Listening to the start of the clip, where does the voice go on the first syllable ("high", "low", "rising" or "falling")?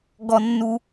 low